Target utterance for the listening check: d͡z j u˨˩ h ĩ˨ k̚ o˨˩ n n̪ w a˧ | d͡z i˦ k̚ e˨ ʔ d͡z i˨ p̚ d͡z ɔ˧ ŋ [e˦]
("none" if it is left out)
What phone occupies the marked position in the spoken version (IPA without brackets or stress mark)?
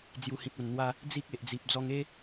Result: e˦